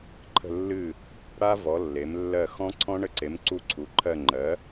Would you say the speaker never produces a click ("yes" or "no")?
no